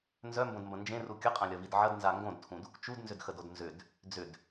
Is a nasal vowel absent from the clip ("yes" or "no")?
no